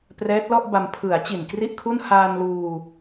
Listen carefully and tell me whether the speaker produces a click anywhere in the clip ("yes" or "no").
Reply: no